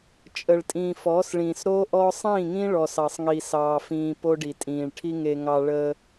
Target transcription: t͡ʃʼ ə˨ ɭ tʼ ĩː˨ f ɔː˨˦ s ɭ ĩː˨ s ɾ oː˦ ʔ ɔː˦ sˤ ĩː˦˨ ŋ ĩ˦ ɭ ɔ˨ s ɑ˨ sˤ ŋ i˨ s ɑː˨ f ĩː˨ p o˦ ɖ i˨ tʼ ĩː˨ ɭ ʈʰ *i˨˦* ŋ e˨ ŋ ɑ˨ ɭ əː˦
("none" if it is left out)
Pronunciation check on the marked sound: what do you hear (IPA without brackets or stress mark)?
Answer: i˦